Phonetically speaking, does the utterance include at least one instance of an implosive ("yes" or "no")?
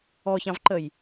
no